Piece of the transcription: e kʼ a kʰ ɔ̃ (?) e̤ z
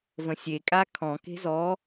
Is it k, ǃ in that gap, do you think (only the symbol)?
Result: k